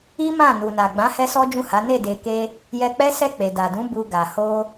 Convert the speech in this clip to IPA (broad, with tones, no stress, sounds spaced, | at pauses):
i˦ m ã˦˨ n u˨ n a˨ ɡ͡b ã˨˦ h ɛ˦ s ɔ˦ d͡ʒ ũ˦˨ h a˨˦ n e˦˨ d e˨ k e˧ | j ɛ˧ k͡p ɛ˦ s ɛ˦˨ k͡p e˨ d a˨ d ũ˨˦ b u˧ ɡ a˨ h o˧